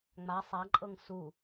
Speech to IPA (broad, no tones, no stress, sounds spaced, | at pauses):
ŋ͡m a sˤ a ǃʼ ɤ ŋ s u